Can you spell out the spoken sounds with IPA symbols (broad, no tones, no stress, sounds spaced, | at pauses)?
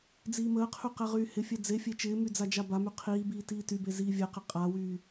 d͡z iː m əː qʰ y q ɛ ʁ yː h ɪ fʲ ɛ d͡z e fʲ e t͡ʃ ɪː m y d͡z a d͡ʒ a b a m y qʰ iː b iː t iː t y b e z iː vʲ ɛ q ɪ qʼ a w yː